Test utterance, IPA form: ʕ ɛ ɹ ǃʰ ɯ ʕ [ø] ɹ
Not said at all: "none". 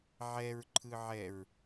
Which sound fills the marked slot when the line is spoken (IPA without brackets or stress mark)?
ɛ